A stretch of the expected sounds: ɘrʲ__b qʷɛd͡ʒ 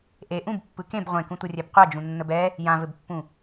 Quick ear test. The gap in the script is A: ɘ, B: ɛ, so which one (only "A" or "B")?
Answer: B